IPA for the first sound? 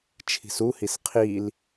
t͡ʃʰ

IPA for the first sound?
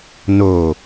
n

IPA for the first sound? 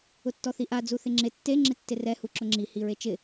ʊ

